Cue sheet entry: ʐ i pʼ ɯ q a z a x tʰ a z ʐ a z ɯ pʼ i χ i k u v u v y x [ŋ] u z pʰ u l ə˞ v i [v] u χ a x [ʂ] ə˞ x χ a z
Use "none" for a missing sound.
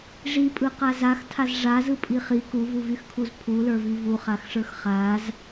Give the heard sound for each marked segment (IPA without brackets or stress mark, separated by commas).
kʰ, v, ʂ